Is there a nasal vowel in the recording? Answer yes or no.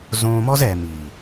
yes